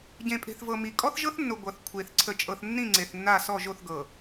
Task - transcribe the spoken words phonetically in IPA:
ɟẽ˨pʼe̤˨θvɤ˨ mi˨ kʼɔ˦θʒɤ˦θnːʊ˨ ɡʷʌ˨θ kʷʰe˨θ ǀʰə˨t͡ʃʼɤ˨θnːĩ˦˨ ŋ͡ǀe˨θnːa˦˨ sɔ˦˨ʒo˦˨θɡɤ˨

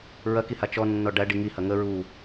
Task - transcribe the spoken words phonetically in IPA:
ɹɐkiha t͡ʃɔnːɔ ɖæɖi ŋihɐ ŋə ɹu

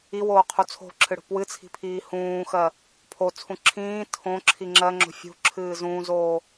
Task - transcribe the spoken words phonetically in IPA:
iwoːqʰu t͡sʰo̤ǁʰɨɽo̤ pwɨt͡sʰi̤pʰiː hũːxɜ | pʰot͡sʰũ ǁʰĩː tʰõǁʰi ŋ͡ǁɜŋ͡ǁo̤ fʲṳǁʰɨː zũːzoː

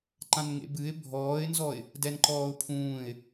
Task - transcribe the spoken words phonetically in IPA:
ǃãnŋḛbɨɪ̯ bʱɔːɪ̯nzɔɪ̯ | dɛnǃɔːʊ̯pʰũːɪ̯

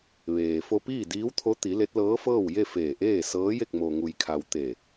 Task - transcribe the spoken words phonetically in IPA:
ʋeː˩ fo˧piː˥˨diː˧˥wt̪ʰo˧˥ t̪i˩˧ le˧˥t̚lɤː˧˥fɤː˥˨wje˥˨ feː˧˩ʔeː˥˨sɤː˧˥je˥˨k̚ mo˩ŋu˩jkʰa˩w t̪e˧˩

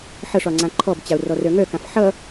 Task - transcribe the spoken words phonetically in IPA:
ħʌʂɒ ŋ͡ǀãǃʰɔbt͡ɕao̯ rɔrœŋœkãf ħʌ

